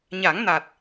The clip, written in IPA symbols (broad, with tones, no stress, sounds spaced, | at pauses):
ɲ a˨˩˦ ŋ n a˨˩ t̚